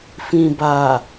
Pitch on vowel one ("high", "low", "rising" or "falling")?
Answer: low